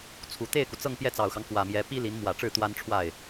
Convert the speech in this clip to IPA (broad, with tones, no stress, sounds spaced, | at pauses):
t͡sʰ u˨˩ t̪ e˥˩ ɪ̯ k u˩ t͡s ɤ˥˧ ŋ p j ɛ˥˩ t͡s ɑ˨˩ ʊ̯ x ɑ˦ ŋ k w ä˨˩ m j ɛ˧˥ p i˥ l i˧˥ n m w ä˨˩ ʈ͡ʂ ɻ̩˥˩ t̪ w a˥ n ʈ͡ʂʰ w a˥˩ ɪ̯